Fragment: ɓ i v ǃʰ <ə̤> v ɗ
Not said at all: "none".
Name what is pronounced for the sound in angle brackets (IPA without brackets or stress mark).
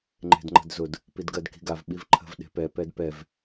ə̤